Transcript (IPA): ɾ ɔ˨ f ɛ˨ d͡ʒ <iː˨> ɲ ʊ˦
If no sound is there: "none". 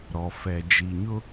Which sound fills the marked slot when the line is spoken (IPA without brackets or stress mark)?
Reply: i˨